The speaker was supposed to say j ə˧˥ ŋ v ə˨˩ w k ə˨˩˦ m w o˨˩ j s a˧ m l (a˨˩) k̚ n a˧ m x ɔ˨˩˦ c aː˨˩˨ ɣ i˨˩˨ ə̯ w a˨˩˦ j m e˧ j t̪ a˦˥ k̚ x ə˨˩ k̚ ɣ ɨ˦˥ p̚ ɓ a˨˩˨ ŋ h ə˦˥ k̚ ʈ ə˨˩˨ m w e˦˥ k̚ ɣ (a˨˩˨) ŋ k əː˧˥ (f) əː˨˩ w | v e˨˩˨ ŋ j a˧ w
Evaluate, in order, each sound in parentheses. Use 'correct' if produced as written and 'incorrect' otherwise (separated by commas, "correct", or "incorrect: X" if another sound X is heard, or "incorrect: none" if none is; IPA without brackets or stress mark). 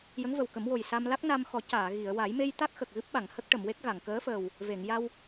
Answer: incorrect: a˦˥, correct, correct